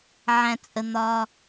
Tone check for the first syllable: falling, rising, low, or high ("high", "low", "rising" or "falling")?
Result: low